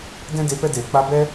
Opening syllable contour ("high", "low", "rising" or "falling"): high